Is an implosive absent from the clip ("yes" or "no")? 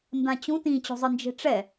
yes